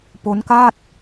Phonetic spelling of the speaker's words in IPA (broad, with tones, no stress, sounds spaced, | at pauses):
p o˦˥ n k a˥˩ t̚